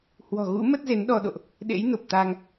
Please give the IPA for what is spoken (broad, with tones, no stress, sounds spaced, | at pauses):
h w ɔ̤˨˩ ɣ ṵ˧˥ m ə˦˥ t̚ z e˨˦ n ɗ ɔ˧ ɗ o̰˧˨ ʔ | ɗ ḛ˧˥ j n o˨˩ p̚ t̪ a˧ ŋ